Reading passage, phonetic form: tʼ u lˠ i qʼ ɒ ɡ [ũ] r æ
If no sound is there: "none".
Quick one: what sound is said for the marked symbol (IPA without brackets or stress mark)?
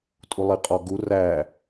u